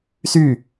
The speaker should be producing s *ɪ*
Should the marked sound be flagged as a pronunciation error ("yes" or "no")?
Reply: yes